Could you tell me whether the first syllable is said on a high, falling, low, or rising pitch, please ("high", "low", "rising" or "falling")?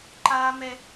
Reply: low